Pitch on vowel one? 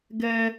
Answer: high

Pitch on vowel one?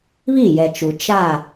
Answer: falling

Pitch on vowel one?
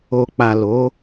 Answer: low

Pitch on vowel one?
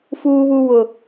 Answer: high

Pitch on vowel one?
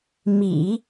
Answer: low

